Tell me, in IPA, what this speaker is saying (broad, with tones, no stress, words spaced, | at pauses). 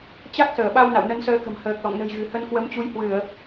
t͡ɕa˦˥k̚səː˧˩ɓa˧w na̰˧˨wnə˨˦nsəː˨˦kə̤˨˩m həː˨˩k̚lɔ̰˧˨ŋnə̤˨˩jɣɨ̤˨˩ hə˧nkwə˨˦mt͡ɕu˨˦jhwɨ˧˩˨ə̯